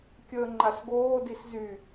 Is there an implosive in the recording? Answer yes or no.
no